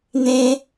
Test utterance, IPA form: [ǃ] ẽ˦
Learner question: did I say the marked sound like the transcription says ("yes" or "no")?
no